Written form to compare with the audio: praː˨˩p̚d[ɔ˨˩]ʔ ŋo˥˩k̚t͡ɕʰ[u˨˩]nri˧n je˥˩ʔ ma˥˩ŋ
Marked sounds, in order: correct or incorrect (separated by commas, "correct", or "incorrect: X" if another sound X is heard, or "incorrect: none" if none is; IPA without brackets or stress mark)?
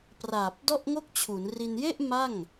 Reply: incorrect: ɔ˥˩, incorrect: u˩˦